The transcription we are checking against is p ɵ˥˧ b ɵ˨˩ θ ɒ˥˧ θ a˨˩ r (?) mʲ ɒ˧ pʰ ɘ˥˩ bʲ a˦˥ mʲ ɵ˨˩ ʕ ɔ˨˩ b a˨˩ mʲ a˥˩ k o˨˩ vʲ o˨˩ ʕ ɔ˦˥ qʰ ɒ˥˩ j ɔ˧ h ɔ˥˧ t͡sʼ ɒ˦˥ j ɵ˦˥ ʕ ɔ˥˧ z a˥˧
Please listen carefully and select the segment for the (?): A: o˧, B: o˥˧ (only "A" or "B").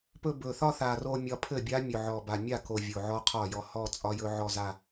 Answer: A